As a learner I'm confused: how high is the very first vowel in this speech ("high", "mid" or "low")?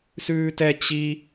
high